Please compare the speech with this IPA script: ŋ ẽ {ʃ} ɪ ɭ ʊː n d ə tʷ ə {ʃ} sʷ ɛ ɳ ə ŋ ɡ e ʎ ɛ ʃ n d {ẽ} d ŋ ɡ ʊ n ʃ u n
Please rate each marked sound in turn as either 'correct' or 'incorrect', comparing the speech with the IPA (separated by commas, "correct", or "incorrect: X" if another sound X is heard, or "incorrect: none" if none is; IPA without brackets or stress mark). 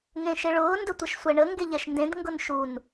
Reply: correct, correct, correct